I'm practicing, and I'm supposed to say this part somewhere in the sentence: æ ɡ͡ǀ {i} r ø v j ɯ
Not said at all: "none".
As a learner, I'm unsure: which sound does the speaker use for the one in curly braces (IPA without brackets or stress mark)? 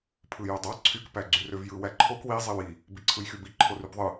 y